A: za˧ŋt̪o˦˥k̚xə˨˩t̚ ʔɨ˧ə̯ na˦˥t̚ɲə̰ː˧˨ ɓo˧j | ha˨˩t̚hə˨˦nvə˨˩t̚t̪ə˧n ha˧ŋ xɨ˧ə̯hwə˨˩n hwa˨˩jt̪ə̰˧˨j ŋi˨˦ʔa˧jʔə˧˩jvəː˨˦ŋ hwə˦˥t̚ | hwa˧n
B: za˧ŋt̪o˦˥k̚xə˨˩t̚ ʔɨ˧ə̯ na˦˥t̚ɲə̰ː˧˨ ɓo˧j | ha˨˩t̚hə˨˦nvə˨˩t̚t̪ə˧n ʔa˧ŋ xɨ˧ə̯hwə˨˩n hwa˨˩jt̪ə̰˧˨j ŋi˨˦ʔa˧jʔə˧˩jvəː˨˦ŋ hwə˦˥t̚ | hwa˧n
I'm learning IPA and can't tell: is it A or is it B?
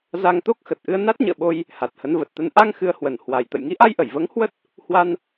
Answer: B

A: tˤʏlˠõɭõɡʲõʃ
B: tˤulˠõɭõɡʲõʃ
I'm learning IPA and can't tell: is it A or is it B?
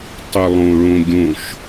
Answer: A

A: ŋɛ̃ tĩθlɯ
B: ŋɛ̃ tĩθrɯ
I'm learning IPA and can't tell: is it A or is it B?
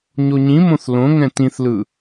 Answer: A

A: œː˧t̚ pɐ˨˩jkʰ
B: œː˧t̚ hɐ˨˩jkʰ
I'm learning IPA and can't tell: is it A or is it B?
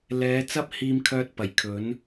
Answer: A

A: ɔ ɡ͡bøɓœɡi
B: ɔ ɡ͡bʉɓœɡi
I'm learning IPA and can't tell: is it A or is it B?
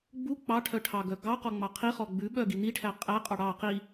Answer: B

